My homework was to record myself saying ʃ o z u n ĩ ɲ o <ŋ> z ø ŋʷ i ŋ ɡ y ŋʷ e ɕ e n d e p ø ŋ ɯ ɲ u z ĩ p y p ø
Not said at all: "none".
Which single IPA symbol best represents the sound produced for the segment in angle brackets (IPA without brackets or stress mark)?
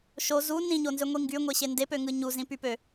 n